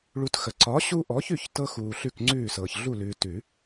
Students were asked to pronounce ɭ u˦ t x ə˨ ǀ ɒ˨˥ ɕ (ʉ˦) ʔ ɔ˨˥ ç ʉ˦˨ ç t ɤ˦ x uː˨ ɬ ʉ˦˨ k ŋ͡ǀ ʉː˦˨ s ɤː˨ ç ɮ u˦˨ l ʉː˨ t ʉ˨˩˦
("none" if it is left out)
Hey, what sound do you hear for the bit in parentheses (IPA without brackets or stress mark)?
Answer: u˦